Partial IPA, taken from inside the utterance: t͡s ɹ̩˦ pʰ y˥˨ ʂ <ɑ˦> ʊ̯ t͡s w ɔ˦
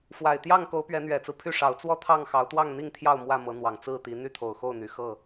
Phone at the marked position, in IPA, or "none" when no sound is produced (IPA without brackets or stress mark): ɑ˨˦